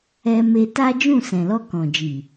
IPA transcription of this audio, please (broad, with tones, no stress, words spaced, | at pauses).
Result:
ɛ˧me˧ ta˦d͡ʒũ˦˨ sɛ̃˨lɔ˧ kɔ̃˨ d͡ʒi˨